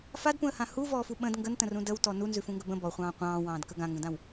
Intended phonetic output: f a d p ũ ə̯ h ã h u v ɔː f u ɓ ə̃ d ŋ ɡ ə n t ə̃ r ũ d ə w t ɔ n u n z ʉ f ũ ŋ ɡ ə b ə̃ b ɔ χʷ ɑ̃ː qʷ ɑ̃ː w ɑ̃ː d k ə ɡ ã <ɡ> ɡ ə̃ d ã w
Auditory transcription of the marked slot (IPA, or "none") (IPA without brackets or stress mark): ŋ